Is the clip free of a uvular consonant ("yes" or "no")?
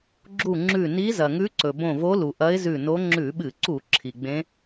yes